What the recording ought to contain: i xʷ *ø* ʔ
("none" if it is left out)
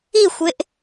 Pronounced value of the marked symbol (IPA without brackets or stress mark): e